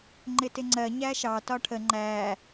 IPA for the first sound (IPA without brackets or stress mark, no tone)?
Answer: ŋ͡ǃ